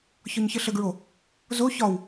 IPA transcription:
ç ɒ ɲ ç ə ɬ ə ɡ ɹ o | z o ç ɒ w

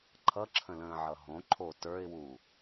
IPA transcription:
ǃʰ ʌ ǁʰ ə̃ l ə̃ː ʕ ʌ ɦ õ ǃʰ o t ə˞ ɪ̯ w u

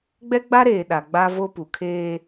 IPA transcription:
ɡ͡b ɛ˦ ɡ͡b a˦ ɾ eː˨ ɗ a˨ ɡ͡b a˦ v o˦ p u˨ kʰ eː˦

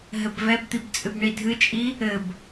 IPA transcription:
ɦ ɘ b v ɛ b t̪ i b t͡sʼ ɨ b ɳ i dʱ ɨ t͡ʃʼ i | ɘ b

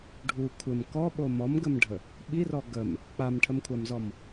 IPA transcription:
ɖʱ u kʷʰ ɘ m k ɔ ɓ o m ɔ m ɡ ə m ɖʱ ə | ɓ i r ɔ ɡ ə m | k͡p a m ʈʰ ə m kʷʰ a m z ɔ m

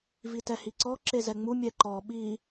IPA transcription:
v i t ɛ h i ǀ ɔ ǁ e z ɛ ŋ͡m u mʲ ɛ ǃ ɔ ɓ i

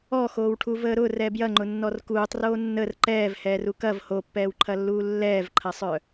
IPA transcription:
ɔ x oː w ʈʰ u v əː ɾ ʊ r ɛ b j ɐ ŋ͡ǃ ʊ nː ɔ r k uː tˤ r oː nː ə r ǃ ɛː v h ɛː r u k ɐ v h o pː ɛː w ǃʰ ɐ lː uː lː ɛː v ǃʰ ɐ sˤ œ

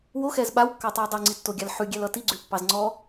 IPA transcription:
w o x ɛ z ɓ a w kː ɑ tˤ u j dˤ u ŋ͡ǀ i tː o ɡʲ a l ħ ʉ ɡʲ ɛ l ʌ t i ɡ͡ǀ ʉ pː ɑ z ŋ͡ǀ ɔ

